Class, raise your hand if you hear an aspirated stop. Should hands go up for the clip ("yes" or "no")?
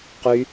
no